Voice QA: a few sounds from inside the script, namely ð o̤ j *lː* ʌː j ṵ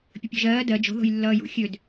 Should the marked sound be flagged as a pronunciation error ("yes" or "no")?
no